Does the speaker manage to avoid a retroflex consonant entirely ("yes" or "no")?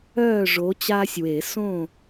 no